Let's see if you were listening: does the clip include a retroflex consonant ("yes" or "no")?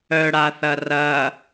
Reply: yes